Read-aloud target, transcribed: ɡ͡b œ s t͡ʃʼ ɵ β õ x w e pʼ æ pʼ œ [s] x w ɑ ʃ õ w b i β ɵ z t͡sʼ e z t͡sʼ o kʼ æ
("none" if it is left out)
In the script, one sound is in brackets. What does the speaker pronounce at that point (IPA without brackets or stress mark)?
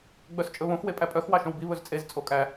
none